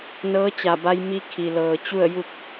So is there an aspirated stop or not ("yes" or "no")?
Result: yes